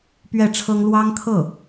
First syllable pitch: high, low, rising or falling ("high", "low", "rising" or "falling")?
falling